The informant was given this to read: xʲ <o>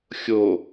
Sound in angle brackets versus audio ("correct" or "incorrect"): correct